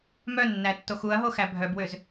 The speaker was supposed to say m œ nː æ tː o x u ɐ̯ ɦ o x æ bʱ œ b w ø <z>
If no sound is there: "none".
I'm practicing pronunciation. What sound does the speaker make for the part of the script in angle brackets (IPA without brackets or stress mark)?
z